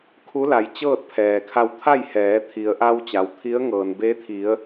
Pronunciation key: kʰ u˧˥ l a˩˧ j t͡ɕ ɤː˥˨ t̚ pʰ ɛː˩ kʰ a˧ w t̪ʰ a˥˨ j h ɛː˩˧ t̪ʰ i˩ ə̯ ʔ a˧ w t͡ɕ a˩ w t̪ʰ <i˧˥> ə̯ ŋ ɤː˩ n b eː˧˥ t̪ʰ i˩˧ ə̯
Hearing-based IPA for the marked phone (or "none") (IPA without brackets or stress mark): i˧˥